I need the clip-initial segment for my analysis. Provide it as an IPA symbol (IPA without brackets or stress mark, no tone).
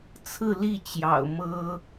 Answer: t͡sʰ